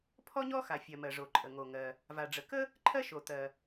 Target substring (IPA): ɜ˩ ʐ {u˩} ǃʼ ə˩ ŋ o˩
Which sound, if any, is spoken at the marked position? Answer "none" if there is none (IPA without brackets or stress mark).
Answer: o˩